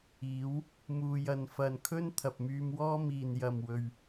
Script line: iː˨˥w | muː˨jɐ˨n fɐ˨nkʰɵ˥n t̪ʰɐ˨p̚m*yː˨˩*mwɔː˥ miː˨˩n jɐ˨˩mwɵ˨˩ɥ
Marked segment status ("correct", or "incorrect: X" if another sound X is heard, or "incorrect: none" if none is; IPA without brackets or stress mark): incorrect: yː˧